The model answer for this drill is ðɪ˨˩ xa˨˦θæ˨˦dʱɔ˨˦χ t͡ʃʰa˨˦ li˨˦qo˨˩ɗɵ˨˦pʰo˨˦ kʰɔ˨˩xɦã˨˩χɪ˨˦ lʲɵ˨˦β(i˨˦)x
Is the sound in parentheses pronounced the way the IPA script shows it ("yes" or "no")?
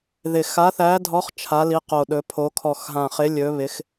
no